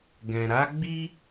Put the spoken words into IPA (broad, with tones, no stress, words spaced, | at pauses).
ɡɛ̃˨ ɾa˨˦ ɡ͡bi˧